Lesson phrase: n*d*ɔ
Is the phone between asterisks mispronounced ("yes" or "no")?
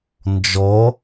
yes